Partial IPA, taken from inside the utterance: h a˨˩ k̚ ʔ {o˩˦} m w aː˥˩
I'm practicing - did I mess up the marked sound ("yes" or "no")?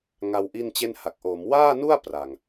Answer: yes